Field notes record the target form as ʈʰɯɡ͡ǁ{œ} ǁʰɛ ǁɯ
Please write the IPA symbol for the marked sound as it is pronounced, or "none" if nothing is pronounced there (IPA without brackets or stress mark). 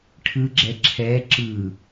ɛ